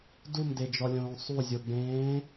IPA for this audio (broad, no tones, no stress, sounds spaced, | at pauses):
d u m d e d͡ʒ ɔ lʲ õː sˤ u zʲ o ɡ͡b ẽː